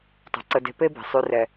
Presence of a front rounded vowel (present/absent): present